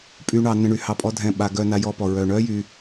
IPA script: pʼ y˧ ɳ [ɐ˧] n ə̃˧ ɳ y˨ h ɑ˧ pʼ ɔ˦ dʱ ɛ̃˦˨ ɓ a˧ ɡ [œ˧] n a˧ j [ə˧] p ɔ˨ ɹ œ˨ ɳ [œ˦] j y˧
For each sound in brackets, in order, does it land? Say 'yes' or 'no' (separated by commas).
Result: no, yes, no, yes